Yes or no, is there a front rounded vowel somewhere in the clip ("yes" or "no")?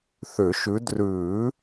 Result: yes